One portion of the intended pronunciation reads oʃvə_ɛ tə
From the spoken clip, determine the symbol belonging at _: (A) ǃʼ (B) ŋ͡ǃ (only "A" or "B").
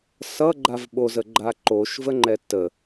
B